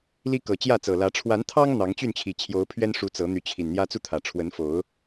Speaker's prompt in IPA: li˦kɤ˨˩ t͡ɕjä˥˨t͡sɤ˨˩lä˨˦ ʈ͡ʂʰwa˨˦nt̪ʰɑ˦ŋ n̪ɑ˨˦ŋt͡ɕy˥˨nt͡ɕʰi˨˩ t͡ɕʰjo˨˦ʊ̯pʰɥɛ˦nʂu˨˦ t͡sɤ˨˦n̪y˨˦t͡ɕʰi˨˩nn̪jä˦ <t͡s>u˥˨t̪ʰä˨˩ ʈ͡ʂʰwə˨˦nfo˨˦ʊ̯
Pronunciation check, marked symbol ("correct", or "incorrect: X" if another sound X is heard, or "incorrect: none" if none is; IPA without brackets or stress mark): correct